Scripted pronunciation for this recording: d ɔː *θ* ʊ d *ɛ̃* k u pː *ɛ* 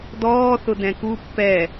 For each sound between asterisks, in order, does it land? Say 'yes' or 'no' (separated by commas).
yes, yes, yes